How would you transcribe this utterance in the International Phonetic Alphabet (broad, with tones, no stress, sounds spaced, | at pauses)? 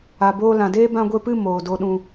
a˨ b oː˧ l ã˨ d eː˦ b ã˧ ɡʷ e˧ p ɨ˦˨ m oː˨ d o˧ ɗ ũ˧